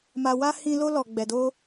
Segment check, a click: absent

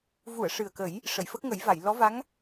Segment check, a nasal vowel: absent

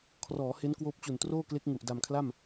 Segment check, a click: absent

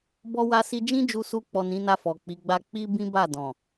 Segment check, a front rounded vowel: absent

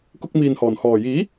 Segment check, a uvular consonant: absent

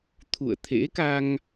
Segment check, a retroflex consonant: absent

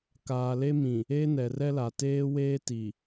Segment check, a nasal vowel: present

